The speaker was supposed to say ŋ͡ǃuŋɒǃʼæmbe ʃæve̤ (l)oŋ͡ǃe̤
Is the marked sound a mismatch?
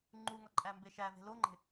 no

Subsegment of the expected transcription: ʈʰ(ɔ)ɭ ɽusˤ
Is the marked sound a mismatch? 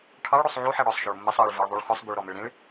yes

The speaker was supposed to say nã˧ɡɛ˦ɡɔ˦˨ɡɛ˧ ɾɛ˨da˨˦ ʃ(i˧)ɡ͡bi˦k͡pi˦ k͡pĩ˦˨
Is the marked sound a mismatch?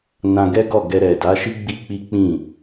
yes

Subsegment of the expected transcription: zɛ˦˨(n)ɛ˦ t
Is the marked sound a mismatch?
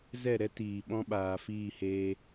yes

